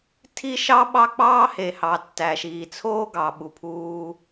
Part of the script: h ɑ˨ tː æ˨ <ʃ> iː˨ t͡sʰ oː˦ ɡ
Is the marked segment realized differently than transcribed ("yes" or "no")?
no